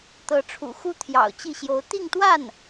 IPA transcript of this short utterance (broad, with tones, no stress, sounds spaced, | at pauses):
t̪ ɤ˧˥ ʈ͡ʂʰ ṵ˨˩ x u˥ t̪ʰ j ɑ̰˨˩ ʊ̯ t͡ɕ i˥˩ ɕ j o˧˥ ʊ̯ t̪ i˥˧ ŋ t̪ w a˥˩ n